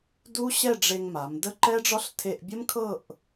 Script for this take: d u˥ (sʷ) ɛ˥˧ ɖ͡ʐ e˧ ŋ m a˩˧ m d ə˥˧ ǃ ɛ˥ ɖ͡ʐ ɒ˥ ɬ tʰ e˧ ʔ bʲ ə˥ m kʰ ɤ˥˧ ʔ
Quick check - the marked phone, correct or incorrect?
incorrect: ɕ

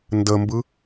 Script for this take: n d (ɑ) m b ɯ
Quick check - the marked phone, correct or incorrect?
incorrect: ə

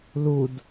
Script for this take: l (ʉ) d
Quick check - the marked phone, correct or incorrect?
incorrect: u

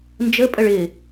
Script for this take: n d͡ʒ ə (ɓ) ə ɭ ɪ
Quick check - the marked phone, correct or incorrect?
incorrect: pʼ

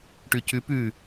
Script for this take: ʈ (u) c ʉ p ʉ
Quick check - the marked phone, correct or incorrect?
incorrect: ʉ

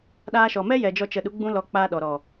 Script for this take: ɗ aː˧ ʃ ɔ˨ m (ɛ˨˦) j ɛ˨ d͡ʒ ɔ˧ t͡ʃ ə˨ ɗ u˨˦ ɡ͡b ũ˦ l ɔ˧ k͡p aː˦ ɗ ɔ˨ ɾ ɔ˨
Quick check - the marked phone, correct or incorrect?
incorrect: ɛ˦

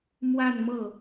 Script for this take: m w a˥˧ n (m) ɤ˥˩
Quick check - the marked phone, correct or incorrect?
correct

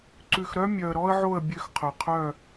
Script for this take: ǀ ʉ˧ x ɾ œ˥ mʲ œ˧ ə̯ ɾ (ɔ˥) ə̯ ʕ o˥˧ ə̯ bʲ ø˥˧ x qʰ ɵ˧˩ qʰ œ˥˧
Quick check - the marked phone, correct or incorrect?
correct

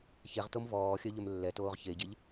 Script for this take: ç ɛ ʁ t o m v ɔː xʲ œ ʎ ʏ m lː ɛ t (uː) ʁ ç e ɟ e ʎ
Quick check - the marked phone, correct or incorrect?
incorrect: oː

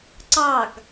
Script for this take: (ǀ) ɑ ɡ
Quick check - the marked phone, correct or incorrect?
correct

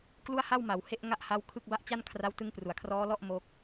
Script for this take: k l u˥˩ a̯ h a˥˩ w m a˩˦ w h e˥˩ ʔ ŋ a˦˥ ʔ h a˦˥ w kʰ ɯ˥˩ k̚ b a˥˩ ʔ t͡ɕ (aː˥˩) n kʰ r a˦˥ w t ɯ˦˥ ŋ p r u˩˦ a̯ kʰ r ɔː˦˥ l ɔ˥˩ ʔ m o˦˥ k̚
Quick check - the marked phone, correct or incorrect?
incorrect: a˥˩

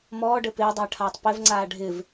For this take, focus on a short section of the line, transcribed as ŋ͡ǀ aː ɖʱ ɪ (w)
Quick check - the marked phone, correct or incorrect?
incorrect: v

